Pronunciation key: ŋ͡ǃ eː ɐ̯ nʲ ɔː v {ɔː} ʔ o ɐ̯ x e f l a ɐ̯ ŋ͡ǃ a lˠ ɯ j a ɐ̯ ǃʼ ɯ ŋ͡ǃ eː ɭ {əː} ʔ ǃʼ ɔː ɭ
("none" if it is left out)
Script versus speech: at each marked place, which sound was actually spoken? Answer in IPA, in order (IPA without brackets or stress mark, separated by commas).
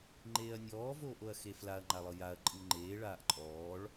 oː, aː